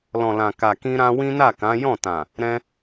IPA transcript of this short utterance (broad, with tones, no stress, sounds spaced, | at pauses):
l ɔ̃˨ l ã˨ k a˨ k ĩ˧ ɾ ã˧ w ĩ˦ n a˦˨ k ã˨˦ j ɔ̃˦˨ t ã˨ | ɾ ɛ̃˧